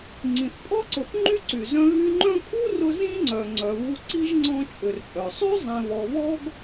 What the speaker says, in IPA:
ŋ͡ǀ ĩ˩ θ pʼ ɔ˥ ǀ ʊ˨ θ ŋ͡ǃ y˥ ǀ y˩ z œ̃˦ ɣ y˦ ŋ͡ǃ œ̃˥ kʼ u˥ r ʊ˦ z ĩ˥ ŋ͡ǀ œ˩ ŋ͡ǀ œ˨ β u˦ ǀ i˥ ʒ ŋ͡ǀ ɔ̃˦ t͡ʃʼ ʏ˨ r pʼ œ˩ sˤ y˥ zˤ ẽ˨ β ɔ˨ β ɔ˥ ɡ

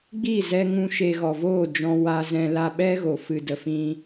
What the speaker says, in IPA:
ɡ͡b i˦˨ z ɛ˧ ŋ ũ˧ ʃ e˧ ɣ ɔ˨ v oː˦˨ d͡ʒ ɔ̃˧ w a˧ z ɛ̃˧ l a˧ ɓ ɛ˦ ɣ o˨ f ɨ˨ d ə˨ f ĩ˧

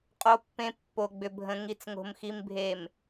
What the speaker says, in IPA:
qʼ o˨ pː ẽ˨ pː o˨ ɡ͡b ʏ˨ bʱ ə̃˨ ŋ i˨ t͡s ŋ o̤˨ m x i˨ m bʱ e˨ m

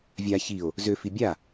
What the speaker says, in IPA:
vʲ a ç i o̯ | z ø f i bʲ a

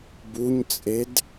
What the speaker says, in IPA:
b u ɲ t͡sʼ e d

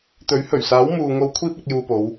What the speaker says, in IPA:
t̪ ɵ˨˥ ɥ h ɵ˨˩ ɥ s aː˨˥ w m uː˨ ŋ o˧ w kʷʰ iː˧ p̚ ɐ˨ k̚ j uː˧ p o˨˧ w

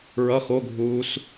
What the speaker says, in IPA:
ɹ ʌ x o ɡʱ uː s

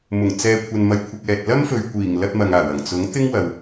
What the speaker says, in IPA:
m ʊ˨˩ ŋ t͡s ɛː˨ kʷʰ ɐ˨ n m ɐ˨ j kʷʰ ɪ˨ k̚ ɛː˨ t̚ l ɐ˥ m f ɵ˨ ɥ kʷ iː˨˩ ŋ l ɐ˧ t̚ m ɐ˨ ŋ aː˨˩ w ɐ˨˩ ŋ t͡s ʊ˨˥ ŋ t̪ ɪ˥ ŋ w ɐ˨ w

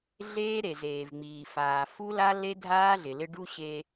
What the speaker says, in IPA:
ɮ eː˦ ɾ e˨ z eː˨ v ŋ͡m iː˨ f aː˨ f u˦ l a˦ l e˦ dʱ aː˦ ɮ ɪ˨ l ɪ˦ ɖ u˦ ɕ e˦

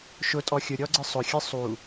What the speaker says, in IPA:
ʃ ʊ tʼ ɔ xʲ ʊ ɾʲ ɔ ɡ͡ǀ ɨ sˤ ʊ xʲ ɨ sˤ u

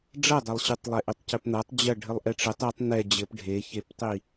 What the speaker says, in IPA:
ɖ͡ʐ ɐ dˤ ɛ lˠ ɕ ɨ tˤ lˠ e ʔ ɘ tˤ c ɘ p n̪ ɐ tˤ d͡ʑ ɐ ɖʱ ɘ lˠ ʔ ɛ ʈ͡ʂ ɘ tˤ i tˤ n ɛ d͡ʑ ɘ p ɖʱ e ç e p tˤ i

